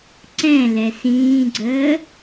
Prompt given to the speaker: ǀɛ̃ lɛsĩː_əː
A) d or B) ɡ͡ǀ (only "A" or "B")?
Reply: B